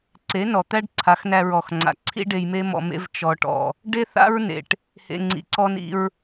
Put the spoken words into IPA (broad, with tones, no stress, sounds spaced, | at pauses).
ǀ e˨˦ n ɔ˨ t̪ æ˦ ɖ ǀʰ a˨˦ x n æ˧ ɹ ɔ˨ x ŋ͡ǀ a̰˨ ǀʰ ḭ˦ ɖ e˧ j m e˦ m ɔ̰˧ m ḛ˦ v t͡ʃ ɔ˧ ʈ ɔ̰˧ | ɖ e˦ θ a̰˦ ɹ n ḛ˨ ʈ | h ḛ˨ ŋ͡ǀ ḭ˨ ǀ ɔ˧ n ḭ˧ ɹ